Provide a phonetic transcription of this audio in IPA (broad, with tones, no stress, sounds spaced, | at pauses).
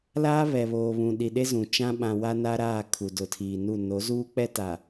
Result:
l aː˦ β ɛ˨ β oː˨ β ũ˨ ɗ i˨ ɗ e˦ z ũ˨ t͡ʃ ã˦ ɓ ã˨ w a˦ n a˦ ɾ aː˦˨ kʰ u˨ d ʊ˨ tʰ iː˨ n u˦˨ n o˨˦ z uː˦ k͡p ɛ˦ t a˨